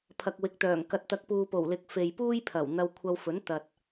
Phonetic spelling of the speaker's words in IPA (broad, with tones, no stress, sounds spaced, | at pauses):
pʰ ɐ˨ k̚ w ɪ˨ k̚ t̪ œː˨˩ ŋ k ɐ˨˥ t̚ t̪ ɐ˨˥ k̚ p uː˨ p o˨˩ w l ɪ˨ k̚ f e˨ j p uː˥ j pʰ ɐ˨˩ w n̪ ɐ˧ w kʷʰ ɐ˧ w f ɵ˨˥ n t̪ ɐ˨ t̚